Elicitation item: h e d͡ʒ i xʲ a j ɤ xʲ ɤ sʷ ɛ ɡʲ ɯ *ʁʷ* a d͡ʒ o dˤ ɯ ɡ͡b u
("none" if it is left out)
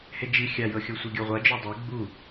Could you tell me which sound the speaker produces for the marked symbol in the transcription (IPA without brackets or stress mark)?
ʁʷ